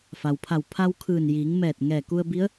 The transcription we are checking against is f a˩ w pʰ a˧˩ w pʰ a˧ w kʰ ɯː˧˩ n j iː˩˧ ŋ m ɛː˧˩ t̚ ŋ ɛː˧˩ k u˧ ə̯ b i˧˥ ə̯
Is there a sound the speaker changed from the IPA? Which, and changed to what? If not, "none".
none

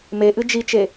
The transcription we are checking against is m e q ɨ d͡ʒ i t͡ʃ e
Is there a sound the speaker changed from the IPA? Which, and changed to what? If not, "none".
q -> ʔ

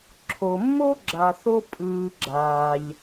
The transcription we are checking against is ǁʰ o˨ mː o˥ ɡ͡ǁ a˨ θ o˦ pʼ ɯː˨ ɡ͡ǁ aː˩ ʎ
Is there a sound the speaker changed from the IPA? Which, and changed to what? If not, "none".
none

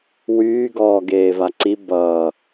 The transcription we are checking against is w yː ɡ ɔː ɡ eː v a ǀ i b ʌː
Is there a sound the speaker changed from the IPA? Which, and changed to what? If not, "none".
none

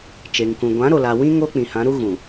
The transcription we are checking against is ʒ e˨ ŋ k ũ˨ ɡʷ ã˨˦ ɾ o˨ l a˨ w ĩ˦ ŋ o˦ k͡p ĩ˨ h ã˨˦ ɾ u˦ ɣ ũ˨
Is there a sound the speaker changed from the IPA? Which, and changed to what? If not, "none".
ʒ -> t͡ʃ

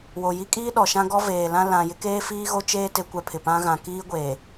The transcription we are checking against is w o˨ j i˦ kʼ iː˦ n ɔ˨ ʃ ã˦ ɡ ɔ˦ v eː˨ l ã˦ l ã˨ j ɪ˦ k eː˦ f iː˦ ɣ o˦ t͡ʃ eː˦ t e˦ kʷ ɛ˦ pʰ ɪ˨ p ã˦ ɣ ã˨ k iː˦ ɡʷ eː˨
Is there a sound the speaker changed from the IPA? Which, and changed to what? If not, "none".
n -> ɗ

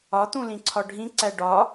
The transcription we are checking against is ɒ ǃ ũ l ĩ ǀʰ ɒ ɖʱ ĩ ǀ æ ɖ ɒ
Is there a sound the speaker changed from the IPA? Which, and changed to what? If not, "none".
ǃ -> t̪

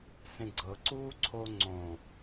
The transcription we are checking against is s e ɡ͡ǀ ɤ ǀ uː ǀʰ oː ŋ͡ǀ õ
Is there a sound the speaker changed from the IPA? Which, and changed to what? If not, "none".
e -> ẽ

